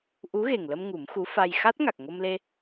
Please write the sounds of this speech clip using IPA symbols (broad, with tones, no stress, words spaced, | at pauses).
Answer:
ʔu˧˥ɣe˨˩ŋlə˧m ŋu˨˩˦mxu˧˥ fa˧j xa˦˥t̚ŋa˨˩k̚ŋo˧mle˧